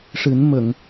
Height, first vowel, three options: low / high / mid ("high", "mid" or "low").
high